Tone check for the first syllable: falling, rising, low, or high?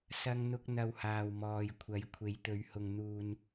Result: high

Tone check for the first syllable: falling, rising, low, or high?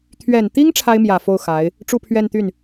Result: low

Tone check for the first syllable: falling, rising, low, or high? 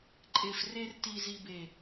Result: low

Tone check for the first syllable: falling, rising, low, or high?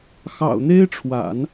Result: low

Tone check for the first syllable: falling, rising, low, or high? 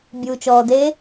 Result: low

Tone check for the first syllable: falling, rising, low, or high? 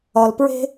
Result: low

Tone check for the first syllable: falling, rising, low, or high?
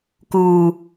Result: low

